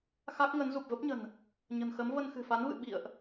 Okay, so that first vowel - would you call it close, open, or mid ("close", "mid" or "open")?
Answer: open